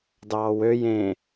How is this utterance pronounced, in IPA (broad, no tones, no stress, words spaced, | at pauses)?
dɑːwøj ẽ